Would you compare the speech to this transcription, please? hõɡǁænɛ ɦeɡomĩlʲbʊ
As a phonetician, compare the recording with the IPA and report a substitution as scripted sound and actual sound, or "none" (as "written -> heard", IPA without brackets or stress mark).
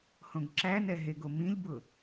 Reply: none